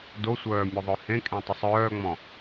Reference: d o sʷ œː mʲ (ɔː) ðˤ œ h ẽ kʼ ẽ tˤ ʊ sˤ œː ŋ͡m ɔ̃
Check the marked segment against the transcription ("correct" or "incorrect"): incorrect